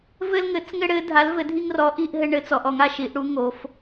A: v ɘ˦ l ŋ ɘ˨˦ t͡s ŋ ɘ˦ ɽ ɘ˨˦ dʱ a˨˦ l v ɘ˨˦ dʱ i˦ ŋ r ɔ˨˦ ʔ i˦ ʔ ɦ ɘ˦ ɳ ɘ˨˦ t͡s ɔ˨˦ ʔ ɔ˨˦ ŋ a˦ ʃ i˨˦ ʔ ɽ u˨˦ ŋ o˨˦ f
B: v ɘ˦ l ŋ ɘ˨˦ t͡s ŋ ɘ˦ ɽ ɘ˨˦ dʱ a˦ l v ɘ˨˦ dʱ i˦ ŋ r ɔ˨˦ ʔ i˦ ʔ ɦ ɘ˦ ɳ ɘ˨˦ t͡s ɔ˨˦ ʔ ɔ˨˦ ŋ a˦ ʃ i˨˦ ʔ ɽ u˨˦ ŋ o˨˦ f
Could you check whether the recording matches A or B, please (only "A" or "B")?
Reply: A